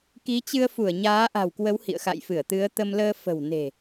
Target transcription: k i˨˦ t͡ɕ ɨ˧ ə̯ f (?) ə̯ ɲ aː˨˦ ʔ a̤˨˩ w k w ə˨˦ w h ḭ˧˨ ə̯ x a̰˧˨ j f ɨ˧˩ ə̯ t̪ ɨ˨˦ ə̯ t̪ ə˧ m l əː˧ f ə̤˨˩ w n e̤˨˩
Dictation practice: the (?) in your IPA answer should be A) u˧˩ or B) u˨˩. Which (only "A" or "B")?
A